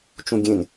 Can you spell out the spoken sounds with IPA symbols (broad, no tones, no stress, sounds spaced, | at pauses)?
t͡ʃ ũ ɡʲ ẽ n